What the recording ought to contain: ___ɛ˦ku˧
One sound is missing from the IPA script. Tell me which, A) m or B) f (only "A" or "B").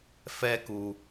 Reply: B